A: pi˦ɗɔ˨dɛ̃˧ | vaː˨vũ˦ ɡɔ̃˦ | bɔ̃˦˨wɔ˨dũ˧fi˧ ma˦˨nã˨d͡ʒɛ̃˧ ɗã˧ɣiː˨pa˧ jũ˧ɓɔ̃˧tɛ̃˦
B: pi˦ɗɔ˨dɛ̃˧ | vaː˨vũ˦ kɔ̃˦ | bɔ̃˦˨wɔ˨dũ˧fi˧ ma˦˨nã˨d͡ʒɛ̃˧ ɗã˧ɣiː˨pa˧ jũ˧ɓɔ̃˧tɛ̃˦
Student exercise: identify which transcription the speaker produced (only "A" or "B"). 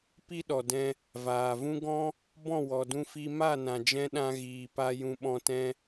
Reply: A